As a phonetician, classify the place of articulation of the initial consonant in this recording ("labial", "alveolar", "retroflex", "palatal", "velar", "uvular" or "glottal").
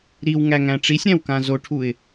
alveolar